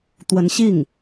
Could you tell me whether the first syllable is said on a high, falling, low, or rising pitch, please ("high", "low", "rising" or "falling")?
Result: rising